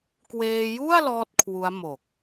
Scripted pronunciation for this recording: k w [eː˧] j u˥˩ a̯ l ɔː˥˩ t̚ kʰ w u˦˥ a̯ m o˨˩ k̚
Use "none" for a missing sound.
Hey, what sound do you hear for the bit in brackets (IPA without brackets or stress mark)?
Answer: eː˧